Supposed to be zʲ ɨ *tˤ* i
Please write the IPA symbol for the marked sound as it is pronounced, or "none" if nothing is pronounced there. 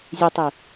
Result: tˤ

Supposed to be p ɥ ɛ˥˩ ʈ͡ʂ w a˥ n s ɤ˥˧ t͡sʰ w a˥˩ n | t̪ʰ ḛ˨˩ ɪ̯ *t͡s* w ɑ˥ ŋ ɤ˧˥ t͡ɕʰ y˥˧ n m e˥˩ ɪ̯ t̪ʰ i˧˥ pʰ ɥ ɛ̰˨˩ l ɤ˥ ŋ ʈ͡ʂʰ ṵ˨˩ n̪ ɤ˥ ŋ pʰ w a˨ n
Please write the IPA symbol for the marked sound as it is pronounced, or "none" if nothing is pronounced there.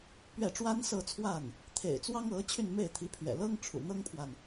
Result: t͡s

